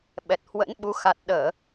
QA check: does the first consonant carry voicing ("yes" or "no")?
yes